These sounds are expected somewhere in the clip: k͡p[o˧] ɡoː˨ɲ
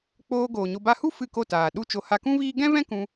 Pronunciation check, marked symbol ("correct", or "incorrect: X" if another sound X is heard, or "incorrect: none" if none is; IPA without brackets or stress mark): incorrect: oː˧